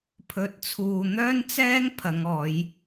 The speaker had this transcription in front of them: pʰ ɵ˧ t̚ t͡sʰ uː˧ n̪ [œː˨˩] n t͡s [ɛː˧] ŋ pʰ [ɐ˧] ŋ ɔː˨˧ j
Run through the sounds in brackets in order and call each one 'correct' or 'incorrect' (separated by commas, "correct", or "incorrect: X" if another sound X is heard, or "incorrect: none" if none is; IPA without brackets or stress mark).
incorrect: œː˥, incorrect: ɛː˥, incorrect: ɐ˨˧